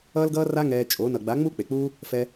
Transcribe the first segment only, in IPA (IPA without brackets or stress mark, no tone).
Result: ʌː